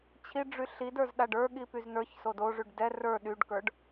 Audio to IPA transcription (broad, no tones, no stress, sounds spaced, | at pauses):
t͡ɕʰ i ɖ͡ʐ y ɬ i d ə˞ z ɗ a ɖ ə˞ ɠ i p y z n ə˞ ç s o d o ʐ y ɖ d ɛ r ə˞ ɗ y ɖ k ə˞ ɖ